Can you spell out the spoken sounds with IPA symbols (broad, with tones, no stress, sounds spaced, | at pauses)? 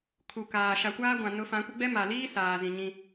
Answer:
kʰ u˨ k aː˨ ʃ a˨ kʷ aː˦ ɡʷ ã˨ n ʊ˨˦ f ã˨˦ kʷ ɪ˦ ɡ͡b ɛ˦ m a˨ l iː˦ s aː˨ z ĩ˨ ɲ ĩ˦